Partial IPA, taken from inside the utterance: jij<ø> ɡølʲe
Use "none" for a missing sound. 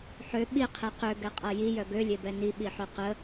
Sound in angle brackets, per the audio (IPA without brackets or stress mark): œ